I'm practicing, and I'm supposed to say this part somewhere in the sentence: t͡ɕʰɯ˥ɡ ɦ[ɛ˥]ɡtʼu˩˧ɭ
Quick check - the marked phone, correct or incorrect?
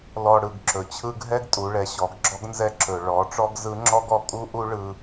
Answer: correct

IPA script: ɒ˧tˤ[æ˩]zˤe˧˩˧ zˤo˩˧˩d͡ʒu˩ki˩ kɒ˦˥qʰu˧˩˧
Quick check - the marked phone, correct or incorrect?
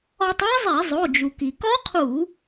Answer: incorrect: æ˦˥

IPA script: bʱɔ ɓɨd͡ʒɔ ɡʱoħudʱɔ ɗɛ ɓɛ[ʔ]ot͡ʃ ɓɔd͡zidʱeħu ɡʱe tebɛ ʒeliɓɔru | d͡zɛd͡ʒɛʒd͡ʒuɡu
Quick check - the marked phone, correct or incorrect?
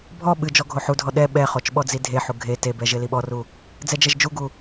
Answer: incorrect: χ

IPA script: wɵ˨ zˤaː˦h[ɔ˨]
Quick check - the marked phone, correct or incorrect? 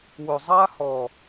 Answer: correct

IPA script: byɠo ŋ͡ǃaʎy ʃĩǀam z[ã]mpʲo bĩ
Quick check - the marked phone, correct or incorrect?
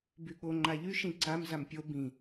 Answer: incorrect: a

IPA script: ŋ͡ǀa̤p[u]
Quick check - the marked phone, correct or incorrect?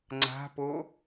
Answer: incorrect: o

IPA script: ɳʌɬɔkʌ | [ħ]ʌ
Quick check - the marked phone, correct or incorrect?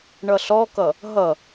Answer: incorrect: ɦ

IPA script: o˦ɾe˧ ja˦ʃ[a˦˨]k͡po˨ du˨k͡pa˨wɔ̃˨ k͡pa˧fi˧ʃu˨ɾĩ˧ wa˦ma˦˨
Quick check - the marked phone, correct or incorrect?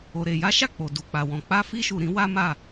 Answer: correct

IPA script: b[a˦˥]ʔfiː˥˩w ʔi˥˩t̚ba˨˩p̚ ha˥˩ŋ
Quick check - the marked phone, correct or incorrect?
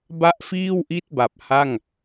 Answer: incorrect: a˥˩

